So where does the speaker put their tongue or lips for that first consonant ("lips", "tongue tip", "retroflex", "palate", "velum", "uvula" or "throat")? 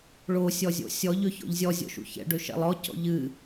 retroflex